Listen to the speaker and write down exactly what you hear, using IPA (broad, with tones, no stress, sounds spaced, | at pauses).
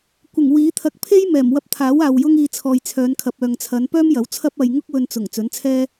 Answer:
kʷ ɪ˨˩ ŋ w iː˨˥ t̪ʰ ɐ˧ k̚ pʰ e˥ j m ɛː˨˩ m w ɐ˧ p̚ t̪ʰ aː˨˥ w aː˨ w j ʊ˥ ŋ iː˧ t͡sʰ ɔː˨ j t͡sʰ œː˨˧ n kʰ ɐ˨ p̚ œː˨ ŋ t͡sʰ ɐ˨˧ n p œː˥ m j ɐ˨˥ w t͡sʰ ɐ˥ p̚ ɐ˧ j ŋ ʊ˥ k̚ w ɵ˧ n t͡s ʊ˨˩ ŋ t͡s ɵ˨˥ n t͡sʰ ɛː˥